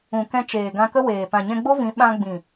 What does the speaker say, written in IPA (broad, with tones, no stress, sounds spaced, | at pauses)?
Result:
ũ˨ k ɛ̃˧ t͡ʃ eː˨ ɡ ã˧ k ə˦ w eː˨ p ã˨ ɲ ɛ̃˧ ɡ͡b o˦ v ĩ˨˦ ɓ ã˧ ɡ͡b ĩ˨